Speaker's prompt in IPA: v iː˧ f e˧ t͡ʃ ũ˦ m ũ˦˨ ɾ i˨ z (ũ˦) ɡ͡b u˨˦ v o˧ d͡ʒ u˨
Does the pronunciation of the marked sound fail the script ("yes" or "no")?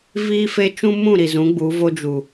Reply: yes